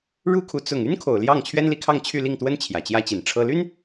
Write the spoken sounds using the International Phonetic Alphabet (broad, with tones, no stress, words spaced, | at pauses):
ɻu˥kʰu˧˥ t͡sʊ˨˩ŋ y˥nkʰo˨˩ʊ̯ ljɑ˥˩ŋt͡ɕʰɥɛ˥nli˧˥kʰɑ˥˧ŋ t͡ɕʰy˥˧li˥˩ŋt̪wə˥n t͡ɕʰjä˨˩t͡ɕjä˥t͡ɕi˨˩nʈ͡ʂʰɤ˥ ly˥n